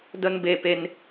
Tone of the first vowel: high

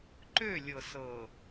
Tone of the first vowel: falling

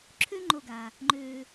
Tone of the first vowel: high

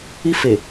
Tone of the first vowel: high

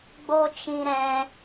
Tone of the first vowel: high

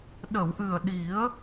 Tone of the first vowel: low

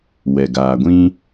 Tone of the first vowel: low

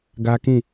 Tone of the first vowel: high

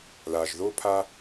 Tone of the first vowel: low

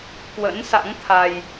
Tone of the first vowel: rising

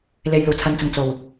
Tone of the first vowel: low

